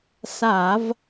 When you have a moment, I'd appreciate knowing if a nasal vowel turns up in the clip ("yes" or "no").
no